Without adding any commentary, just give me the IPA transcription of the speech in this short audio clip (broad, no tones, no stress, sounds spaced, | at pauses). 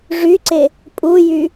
ʐ y ǀ e | pʼ u j y